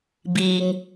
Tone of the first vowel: low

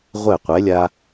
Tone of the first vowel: falling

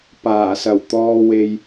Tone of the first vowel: low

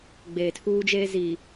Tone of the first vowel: low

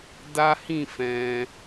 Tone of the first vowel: high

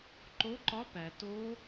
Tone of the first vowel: rising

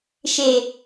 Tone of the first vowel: low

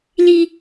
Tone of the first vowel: high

